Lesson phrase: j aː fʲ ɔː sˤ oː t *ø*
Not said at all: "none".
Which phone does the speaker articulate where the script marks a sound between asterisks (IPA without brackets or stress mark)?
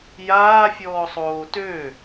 ø